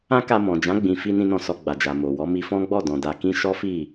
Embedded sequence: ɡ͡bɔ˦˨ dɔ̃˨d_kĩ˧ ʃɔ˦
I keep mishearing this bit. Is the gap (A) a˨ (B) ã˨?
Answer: A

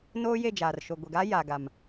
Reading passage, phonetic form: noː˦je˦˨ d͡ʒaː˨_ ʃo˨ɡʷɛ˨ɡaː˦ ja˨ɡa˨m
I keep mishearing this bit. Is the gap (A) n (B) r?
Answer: B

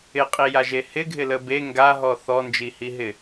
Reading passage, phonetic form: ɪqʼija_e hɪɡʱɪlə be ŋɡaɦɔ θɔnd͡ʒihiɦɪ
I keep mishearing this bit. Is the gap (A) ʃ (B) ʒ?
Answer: B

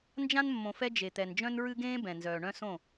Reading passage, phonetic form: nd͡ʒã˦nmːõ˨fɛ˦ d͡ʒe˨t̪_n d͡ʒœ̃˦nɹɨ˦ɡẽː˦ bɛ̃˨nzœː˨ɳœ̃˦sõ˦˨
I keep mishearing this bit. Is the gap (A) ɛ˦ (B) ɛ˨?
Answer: B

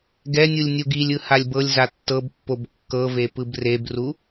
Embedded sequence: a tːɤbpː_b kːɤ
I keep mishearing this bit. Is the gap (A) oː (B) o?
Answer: B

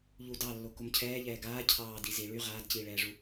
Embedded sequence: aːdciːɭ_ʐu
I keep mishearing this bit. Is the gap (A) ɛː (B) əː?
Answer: A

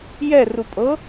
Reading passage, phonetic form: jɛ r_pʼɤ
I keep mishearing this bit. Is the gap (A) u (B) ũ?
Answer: A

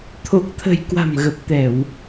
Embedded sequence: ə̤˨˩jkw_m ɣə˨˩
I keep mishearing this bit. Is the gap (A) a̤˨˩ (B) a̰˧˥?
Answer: A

